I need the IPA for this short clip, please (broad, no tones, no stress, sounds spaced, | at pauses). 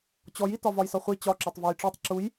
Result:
t͡ɕ ɔ j i t ɒ v ɒ j s ɒ χʷ i t͡ɕ ɒ ǁ ɒ tˤ v ɔ j ʈ͡ʂ ɔ tˤ ǁ u j